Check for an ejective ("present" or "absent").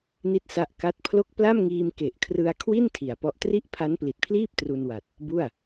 absent